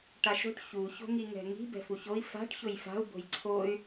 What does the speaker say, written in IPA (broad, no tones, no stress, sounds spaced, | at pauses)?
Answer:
ʈ a ʃ o̤ ʈ ç u ç o̤ ŋ i ŋ ɛ̤ ŋ i̤ b ɛ̤ f u ç o i̯ f a̤ ʈ ç ʊ j f a̤ u̯ b o̤ j ǀʰ o y̯